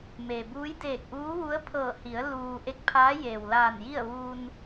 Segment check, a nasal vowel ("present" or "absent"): absent